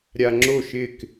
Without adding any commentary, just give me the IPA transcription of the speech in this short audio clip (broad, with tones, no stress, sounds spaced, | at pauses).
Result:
ɾʲ a˧ ŋ͡ǁ o˥˩ ʃ ɪ˥˩ k